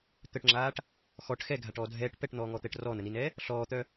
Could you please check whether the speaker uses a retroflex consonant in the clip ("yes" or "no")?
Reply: yes